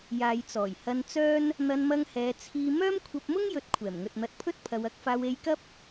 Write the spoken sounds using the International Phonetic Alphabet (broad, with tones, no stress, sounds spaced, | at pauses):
j aː˨ j t͡s ɔː˨˩ j h ɐ˧ n t͡s œː˥ n | n̪ ɐ˧ n m ɐ˧ ŋ h ɛː˨˧ t͡sʰ iː˧ m œː˥ m kʷʰ ɐ˧ p̚ m ʊ˥ ŋ j ɵ˨˥ t̚ kʷʰ ɛː˨˩ m ŋ ɵ˨ t̚ n̪ ɐ˧ t̚ pʰ ɵ˥ t̚ pʰ ɐ˨˧ w ɐ˨˥ k̚ f aː˧ w e˧ j k ɐ˥ p̚